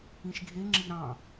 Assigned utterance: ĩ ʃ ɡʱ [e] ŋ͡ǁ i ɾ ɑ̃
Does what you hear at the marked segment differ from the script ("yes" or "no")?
no